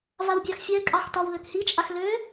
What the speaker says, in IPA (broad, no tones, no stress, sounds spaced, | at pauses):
v a w bʲ ɑ x fʲ a ɪ̯ kʼ ɑ x t ɒ w l ø k h i t͡ʃʼ a x l ø